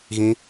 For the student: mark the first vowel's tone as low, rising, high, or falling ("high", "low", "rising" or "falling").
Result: high